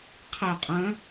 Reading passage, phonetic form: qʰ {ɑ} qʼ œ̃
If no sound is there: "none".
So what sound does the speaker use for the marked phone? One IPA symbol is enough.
ɐ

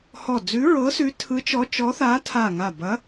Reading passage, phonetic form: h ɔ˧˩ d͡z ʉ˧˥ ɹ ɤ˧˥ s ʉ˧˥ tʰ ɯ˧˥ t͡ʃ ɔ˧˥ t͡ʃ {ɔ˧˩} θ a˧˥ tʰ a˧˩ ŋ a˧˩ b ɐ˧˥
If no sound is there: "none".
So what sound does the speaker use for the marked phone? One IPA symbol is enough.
ɔ˧˥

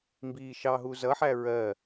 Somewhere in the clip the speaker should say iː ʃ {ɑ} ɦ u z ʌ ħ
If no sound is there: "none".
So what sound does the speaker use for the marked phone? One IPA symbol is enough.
ɑ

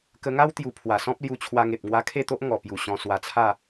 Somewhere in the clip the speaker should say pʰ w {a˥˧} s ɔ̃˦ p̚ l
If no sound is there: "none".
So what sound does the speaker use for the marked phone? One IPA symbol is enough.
a˨˩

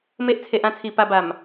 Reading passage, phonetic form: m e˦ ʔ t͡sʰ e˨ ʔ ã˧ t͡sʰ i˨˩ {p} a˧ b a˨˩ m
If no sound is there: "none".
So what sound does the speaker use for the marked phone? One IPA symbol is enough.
p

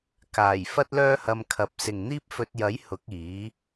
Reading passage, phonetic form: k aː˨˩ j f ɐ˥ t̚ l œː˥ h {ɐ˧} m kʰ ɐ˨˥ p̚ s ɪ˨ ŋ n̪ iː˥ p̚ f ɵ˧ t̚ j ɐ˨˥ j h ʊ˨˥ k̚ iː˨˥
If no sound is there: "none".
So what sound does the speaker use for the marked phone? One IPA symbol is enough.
ɐ˧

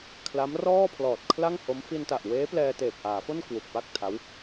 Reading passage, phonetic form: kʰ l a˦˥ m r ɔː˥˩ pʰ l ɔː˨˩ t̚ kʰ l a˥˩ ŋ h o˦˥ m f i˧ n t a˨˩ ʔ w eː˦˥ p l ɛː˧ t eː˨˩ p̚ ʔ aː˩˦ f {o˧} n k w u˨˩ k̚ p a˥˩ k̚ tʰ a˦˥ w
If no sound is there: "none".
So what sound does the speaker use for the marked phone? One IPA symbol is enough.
o˥˩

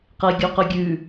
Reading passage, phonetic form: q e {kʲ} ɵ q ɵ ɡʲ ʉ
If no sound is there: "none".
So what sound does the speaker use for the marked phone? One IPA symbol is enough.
ɡʲ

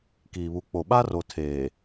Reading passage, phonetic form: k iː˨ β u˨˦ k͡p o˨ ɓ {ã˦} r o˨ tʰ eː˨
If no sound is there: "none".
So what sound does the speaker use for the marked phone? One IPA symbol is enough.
a˦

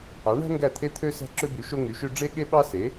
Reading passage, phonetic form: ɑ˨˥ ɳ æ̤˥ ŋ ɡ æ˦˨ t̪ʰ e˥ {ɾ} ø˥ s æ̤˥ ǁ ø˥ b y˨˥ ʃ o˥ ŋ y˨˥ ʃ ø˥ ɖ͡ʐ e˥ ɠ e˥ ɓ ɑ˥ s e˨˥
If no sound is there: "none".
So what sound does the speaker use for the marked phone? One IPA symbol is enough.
t̪ʰ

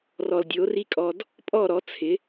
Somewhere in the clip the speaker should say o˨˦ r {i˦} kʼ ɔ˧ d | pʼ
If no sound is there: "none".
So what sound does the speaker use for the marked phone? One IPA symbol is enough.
i˦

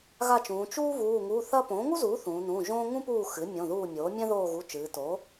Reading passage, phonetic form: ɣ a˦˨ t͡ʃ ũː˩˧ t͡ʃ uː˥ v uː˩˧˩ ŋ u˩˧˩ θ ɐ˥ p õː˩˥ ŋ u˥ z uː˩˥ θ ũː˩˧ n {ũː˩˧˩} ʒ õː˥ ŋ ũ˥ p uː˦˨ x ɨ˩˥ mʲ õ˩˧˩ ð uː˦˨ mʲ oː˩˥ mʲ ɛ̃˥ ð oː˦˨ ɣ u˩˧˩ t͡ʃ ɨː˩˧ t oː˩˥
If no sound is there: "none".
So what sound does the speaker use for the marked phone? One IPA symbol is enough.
ũː˩˧˩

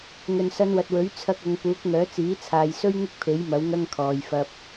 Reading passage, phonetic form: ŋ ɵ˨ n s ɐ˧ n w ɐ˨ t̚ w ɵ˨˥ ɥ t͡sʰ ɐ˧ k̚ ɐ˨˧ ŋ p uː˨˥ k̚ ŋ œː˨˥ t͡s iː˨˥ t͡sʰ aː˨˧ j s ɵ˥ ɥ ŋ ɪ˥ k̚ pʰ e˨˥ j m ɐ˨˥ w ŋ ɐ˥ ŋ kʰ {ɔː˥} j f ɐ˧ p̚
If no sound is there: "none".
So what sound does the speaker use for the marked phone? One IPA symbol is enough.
ɔː˨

